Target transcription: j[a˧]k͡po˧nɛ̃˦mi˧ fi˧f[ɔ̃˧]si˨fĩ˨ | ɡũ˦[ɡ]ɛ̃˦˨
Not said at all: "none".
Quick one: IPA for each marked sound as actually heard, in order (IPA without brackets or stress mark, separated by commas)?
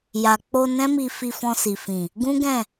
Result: a˨, ɔ̃˧, ɡ